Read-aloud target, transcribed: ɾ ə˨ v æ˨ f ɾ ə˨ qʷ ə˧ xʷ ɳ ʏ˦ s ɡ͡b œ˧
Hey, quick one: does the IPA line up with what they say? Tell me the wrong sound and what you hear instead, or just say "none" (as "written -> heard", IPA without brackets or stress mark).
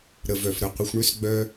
æ˨ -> œ˨